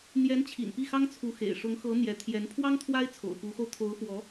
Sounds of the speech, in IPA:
n̪jɛ˧˥nt͡ɕʰḭ˨˩n pi˥˩xɑ˥ŋt͡sʰu˧˥xḛ˨˩ɪ̯ ʂʊ˧˥ŋxɤ˧˥ n̪jɛ˧˥ t̪ʰjɛ˧˥n pʰwɑ˥ŋ t̪ʰwa˥ɪ̯t͡sʰo̰˨˩ʊ̯pu˧˥xo˧ʊ̯ t̪ʰo˧˥ʊ̯fwɔ˧˥

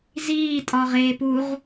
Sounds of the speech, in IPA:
ziːtʼɒʁeːpuʁ

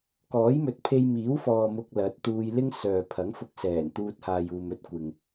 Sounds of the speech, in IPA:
kɔː˨˥jmɵ˨˥t̚ pʰe˧jmiː˨˥wfɔː˨ mʊ˧k̚lɐ˨˥t̚t̪uː˧j lɪ˥ŋsœː˨ pʰɐ˨˥ŋfʊ˧k̚ sɛː˨˩nt̪uː˧t̚ haː˨juː˨mɵ˧t̚ kʷɪ˨ŋ

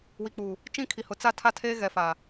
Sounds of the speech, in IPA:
wi˨k͡puː˨ | t͡ʃĩ˦kʰi˨ hʊ˨t͡sa˦tʰa˦tʰeː˦ ɣɛ˨fa˨

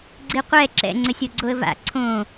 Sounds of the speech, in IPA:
ɡ͡ǀiqʷɛ ǁɛ̰ ŋ͡ǀøsʲoɡ͡ǀoə̯va̰ ǀʰõ

